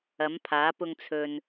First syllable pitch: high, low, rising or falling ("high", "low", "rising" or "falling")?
rising